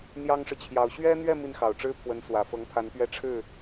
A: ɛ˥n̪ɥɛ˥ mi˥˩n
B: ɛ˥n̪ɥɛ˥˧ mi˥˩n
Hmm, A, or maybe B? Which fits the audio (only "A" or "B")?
B